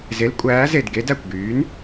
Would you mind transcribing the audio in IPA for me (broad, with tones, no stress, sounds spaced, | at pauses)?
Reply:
z e˩˥ l kʷʼ æː˩˥ z e˧˩ d ɡ e˩˥ d æ˧˩ kʷ ɡ yː˩˥ n